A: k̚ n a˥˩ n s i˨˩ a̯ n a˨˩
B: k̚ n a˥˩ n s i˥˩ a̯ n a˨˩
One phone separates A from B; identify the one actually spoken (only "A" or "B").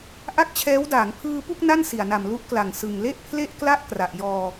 A